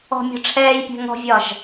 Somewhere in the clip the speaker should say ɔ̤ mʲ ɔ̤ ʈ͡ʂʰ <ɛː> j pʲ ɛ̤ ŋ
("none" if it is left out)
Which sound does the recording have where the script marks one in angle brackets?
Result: ɛː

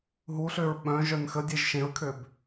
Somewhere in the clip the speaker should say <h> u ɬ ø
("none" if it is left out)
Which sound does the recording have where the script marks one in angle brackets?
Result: ɦ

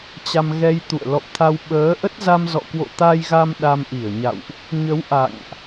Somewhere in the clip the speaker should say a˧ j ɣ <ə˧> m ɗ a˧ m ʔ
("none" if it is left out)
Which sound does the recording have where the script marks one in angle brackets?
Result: a˧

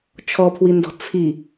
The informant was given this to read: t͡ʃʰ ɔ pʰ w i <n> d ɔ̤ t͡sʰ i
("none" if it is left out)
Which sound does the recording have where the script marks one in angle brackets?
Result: n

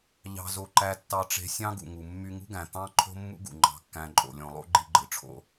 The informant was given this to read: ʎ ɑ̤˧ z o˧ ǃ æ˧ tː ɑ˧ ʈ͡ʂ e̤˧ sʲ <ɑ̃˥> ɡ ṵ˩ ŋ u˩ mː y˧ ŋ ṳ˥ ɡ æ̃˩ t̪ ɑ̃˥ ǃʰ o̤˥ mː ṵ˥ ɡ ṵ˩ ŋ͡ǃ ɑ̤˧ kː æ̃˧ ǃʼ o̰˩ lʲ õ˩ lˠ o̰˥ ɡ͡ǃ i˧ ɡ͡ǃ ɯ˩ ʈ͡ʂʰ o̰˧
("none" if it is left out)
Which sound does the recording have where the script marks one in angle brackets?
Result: ɑ̃˥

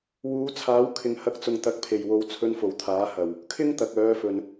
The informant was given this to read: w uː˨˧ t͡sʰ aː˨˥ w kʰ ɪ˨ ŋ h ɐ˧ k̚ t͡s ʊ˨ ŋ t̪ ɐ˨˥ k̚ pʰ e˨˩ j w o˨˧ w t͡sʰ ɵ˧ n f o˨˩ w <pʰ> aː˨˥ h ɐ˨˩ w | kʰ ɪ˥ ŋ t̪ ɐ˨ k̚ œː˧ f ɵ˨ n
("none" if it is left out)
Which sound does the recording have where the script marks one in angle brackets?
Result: t̪ʰ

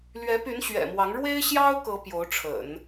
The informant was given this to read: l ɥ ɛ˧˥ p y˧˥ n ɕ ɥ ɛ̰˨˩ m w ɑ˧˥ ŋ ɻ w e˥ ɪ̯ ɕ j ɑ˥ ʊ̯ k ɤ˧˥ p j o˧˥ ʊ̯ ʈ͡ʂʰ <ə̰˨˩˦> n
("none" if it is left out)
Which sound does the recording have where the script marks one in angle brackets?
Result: ə̰˨˩˦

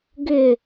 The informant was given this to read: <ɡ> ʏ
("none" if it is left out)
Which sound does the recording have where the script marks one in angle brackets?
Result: ɡ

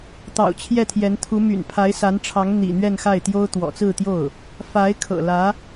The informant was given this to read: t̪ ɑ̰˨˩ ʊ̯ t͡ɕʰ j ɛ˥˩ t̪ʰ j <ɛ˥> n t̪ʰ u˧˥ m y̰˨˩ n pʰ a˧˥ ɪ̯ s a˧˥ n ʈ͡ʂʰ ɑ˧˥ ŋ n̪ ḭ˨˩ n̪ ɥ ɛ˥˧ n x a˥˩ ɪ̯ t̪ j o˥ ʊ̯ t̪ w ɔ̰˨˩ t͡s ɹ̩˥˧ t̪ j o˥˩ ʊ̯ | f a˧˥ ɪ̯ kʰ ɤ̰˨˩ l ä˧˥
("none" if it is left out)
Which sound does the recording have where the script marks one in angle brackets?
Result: ɛ˧˥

